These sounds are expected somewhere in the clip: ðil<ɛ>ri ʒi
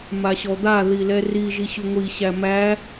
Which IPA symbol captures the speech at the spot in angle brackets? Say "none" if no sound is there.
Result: ɛ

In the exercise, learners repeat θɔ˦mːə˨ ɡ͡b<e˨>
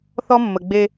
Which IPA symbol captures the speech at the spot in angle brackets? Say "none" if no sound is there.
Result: e˦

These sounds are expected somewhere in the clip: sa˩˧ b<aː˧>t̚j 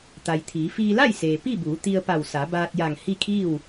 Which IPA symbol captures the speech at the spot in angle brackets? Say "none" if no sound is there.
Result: aː˧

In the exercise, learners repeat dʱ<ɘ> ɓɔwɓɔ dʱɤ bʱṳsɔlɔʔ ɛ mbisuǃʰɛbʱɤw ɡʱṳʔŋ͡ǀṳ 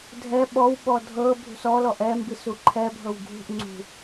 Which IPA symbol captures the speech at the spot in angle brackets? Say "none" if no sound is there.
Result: ɛ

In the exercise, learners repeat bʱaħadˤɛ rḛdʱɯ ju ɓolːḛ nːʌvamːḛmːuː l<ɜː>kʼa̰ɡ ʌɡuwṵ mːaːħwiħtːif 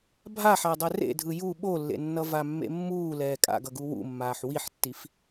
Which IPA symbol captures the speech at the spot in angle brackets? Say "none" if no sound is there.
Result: ɛː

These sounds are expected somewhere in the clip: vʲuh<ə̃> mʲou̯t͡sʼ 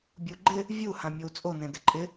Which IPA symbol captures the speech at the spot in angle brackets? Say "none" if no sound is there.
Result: ã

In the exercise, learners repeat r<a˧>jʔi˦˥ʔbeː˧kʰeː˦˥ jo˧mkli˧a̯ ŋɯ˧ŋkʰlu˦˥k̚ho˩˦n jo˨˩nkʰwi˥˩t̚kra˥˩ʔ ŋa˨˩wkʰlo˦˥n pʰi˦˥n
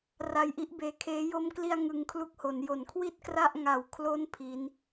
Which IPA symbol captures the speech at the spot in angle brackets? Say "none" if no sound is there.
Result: a˧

